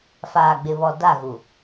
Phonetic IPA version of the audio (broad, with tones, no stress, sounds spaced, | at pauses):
f aː˨ ɡ͡b ɪ˨ β ɔ˨ d a˦˨ ɣ u˨